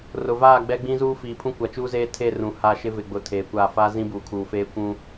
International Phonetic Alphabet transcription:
r ʊ˨ v aː˦˨ ɡ͡b ɛ˦ ɡ͡b ĩ˦ z uː˦ f iː˨ pʰ ũ˦ kʷ a˨ t͡ʃ uː˦ z eː˦ tʰ e˦˨ r ũ˨ h aː˦ ʃ ɪ˦ v ɪ˨ ɡ͡b ʊ˨ tʰ eː˨ kʷ a˦˨ f a˦ z ĩ˦ b uː˨ kʰ uː˨ f eː˦ kʷ ũ˦

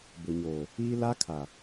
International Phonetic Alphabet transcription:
b ʊ˨ ɲ oː˨ | iː˦ l a˦ kʰ a˨

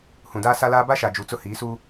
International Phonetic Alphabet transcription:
h ũ˨ d aː˦ s a˦ l aː˦ b a˦ ʃ a˨ d͡ʒ u˨ t͡s ʊ˦ h iː˨˦ s u˦

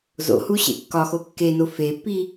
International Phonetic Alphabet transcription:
z o̰ h u ɕ ḛ kː ɒ x o kː e n o f e pː i

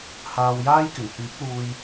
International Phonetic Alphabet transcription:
h aː˨ w j aː˥ j k ɪ˨˩ ŋ h yː˨˥ p̚ l uː˧ j

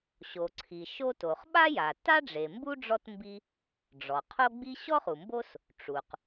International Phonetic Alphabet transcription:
ɕ o˩ ǀʰ i˩ ʃ o˥ t o˩ χ ɓ a˥ j a˩ t a˥ ɖ͡ʐ e˩ m b u˥ ɖ͡ʐ ɔ˥ t m b i˥ | ɖ͡ʐ ɔ˩ qʰ o˥ ɡ͡b i˥ ɕ ɔ˥ χ u˩ m b o˥ s | ʈ͡ʂ u˩ q

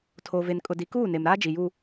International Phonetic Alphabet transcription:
tʰ o˨ v e˨ n kʼ ʊ˨ d i˨ k uː˦˨ n e˨ m ɾ aː˦ d͡ʒ i˨ j u˦

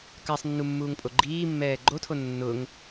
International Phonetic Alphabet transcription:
k a sˤ nː u mː uː ŋ pʼ o ɡ͡ǃ iː mː ɛː ɡ͡ǃ o tʰ o nː ʊ ŋ

